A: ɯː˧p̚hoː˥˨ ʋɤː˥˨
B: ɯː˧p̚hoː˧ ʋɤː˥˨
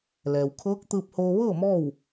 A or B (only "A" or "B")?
B